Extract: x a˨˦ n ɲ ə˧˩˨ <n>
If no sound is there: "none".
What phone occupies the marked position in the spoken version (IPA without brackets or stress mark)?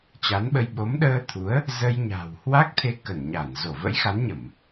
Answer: m